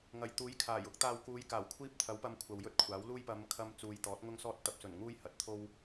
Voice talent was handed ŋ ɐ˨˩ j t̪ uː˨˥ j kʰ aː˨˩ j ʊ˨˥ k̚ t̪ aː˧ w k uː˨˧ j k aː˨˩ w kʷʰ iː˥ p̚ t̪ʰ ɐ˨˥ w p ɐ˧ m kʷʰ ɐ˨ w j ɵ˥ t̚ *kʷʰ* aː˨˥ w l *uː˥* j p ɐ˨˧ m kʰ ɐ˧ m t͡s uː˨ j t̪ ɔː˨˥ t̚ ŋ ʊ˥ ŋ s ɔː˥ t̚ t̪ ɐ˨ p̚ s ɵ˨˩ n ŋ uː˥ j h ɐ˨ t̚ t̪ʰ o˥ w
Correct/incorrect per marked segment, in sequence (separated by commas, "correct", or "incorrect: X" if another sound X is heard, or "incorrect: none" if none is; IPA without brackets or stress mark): correct, correct